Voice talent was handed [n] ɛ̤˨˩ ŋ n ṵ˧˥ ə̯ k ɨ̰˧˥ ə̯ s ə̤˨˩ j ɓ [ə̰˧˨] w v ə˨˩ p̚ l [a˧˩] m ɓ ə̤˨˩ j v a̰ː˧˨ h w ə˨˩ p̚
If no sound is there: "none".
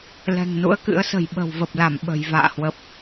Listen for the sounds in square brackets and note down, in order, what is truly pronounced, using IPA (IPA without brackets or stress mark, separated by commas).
l, ə̤˨˩, a˧˩